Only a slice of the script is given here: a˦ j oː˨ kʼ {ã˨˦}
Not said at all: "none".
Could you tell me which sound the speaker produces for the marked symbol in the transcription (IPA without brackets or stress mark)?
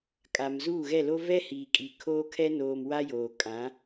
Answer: ã˨˦